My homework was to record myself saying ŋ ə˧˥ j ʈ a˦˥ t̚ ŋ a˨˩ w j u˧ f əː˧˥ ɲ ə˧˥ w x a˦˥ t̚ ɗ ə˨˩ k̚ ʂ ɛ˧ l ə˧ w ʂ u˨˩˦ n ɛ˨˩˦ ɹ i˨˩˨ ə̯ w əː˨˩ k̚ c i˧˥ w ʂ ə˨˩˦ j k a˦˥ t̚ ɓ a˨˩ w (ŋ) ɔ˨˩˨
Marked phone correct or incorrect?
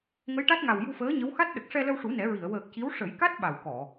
incorrect